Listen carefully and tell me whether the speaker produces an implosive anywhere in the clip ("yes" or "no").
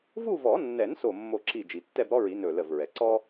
no